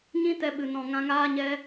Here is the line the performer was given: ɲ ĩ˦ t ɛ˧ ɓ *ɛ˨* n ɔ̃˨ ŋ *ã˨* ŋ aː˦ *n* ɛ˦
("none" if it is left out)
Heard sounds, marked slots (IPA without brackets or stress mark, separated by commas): ɨ˨, ã˧, ɲ